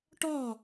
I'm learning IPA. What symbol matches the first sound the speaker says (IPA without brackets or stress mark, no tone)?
ʈ